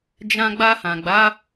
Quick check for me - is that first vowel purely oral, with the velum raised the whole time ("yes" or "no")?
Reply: no